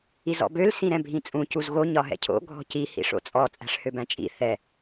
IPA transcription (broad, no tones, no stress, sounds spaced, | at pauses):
i z ɔ̰ b ø l s ĩ ɾ ɛ̃ bʱ ĩ t͡sʼ ũ c u z ɣ o ɲ ɒ ɦ ɛ̰ cʰ o̰ ɡʱ ɔ̤ c i h ḭ ʂ o̰ t͡sʼ ɔ t͡sʼ æ̤ ʂ h ø b æ̃ t͡ʃʼ ḭ θ ɛ